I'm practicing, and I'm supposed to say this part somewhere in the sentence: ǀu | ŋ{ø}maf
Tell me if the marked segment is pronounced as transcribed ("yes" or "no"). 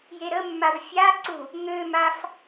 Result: yes